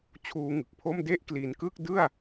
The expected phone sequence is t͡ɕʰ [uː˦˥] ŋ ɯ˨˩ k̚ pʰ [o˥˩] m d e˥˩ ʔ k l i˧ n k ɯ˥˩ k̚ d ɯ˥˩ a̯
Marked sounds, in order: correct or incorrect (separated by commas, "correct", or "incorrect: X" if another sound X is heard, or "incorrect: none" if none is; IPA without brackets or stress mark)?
correct, correct